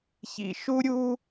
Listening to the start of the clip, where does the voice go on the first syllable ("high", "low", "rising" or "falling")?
low